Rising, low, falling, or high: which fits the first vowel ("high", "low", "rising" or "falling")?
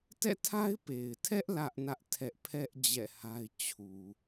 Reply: falling